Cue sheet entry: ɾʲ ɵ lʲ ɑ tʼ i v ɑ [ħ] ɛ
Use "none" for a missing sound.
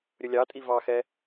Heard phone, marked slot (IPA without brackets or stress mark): x